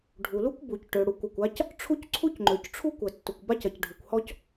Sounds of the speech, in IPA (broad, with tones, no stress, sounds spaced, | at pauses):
ɖʱ u˩ l u˥ kʷ b u˩ c ʈ ø˩ ɽ u˩ kʷ ɐ˩ kʷ a˥ c | ʈ͡ʂʰ u˥ c ǀʰ u˥ c ŋ͡ǃ ø˩ c ʈ͡ʂʰ u˥ kʷ ɐ˩ tː ʊ˩ kʷ b a˥ c ɐ˩ c ɖʱ u˩ kʷ h ɔ˥ c